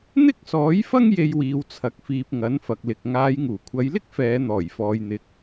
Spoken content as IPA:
n̪ ɪ˥ k̚ s ɔː˨˥ j f ɐ˥ ŋ j e˧ j w iː˨ w t͡sʰ ɐ˨ k̚ f iː˨ p̚ ŋ ɐ˨˥ n f ɐ˨ k̚ l ɪ˨ k̚ ŋ aː˨˧ j ŋ uː˨˩ kʷʰ ɐ˨˧ j l ɪ˥ k̚ f ɛː˨˧ n̪ ɔː˨˩ j f ɔː˨ j n̪ ɪ˨˥ k̚

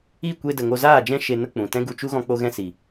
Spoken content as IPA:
i˦˨ kʷ e˧ d ə˨ ŋ o˧ z aː˦˨ d͡ʒ ɛ̃˦ ʃ e˧ n ə˦ k͡p ũ˨ t ɛ̃˦ ɡ u˧ t͡ʃ u˦ ɣ ɔ̃˧ k͡p o˧ ɣ ɛ̃˧ s i˨

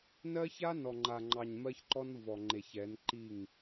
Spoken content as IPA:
n ɜ˦ ç a˦ n ɔ˨ ŋ͡ǃ a˨ ŋ͡ǃ ɑ˨ ɲ m ɜ˦ ç ǃ ɔ˦ n v ɔ˨ ŋ͡ǃ e˨ ç ɛ˨˦ n ǃ i˦˨ ŋ

